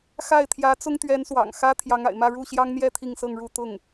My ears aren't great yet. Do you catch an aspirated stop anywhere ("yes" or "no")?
yes